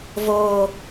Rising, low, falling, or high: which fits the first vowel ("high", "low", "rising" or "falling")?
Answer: high